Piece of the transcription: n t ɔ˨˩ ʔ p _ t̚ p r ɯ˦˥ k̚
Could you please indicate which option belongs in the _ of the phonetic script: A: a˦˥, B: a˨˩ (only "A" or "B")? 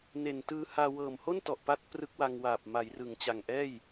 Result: A